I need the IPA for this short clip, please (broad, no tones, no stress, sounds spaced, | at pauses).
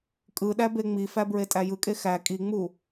kʼ ɯ ɗ æ b e ŋ͡m i f æ b ɹ e tʼ æ j ɯ kʼ e x æ kʼ i ŋ͡m u